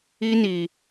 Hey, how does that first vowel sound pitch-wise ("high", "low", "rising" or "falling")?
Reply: high